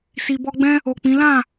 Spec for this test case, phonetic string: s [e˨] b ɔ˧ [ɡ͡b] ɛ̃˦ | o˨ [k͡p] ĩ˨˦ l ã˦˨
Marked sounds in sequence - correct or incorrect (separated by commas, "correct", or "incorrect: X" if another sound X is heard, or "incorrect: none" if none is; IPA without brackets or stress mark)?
incorrect: i˨, correct, correct